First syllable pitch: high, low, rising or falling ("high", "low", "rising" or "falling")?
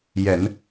low